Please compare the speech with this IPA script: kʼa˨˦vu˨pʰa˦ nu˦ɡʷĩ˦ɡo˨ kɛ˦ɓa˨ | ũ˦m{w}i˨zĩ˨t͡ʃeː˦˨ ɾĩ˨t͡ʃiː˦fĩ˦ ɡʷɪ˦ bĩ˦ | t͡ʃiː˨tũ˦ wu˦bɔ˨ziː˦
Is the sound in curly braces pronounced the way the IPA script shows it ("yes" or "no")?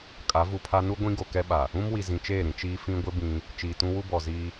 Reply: yes